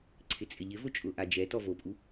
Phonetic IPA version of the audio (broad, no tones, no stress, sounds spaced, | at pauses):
ǀʰ ɪ t͡sʼ ɪ ʎ ɪ v ʊ t͡ʃʼ ʊ ʔ a d͡ʒ ɛ t ɔ v o pʼ u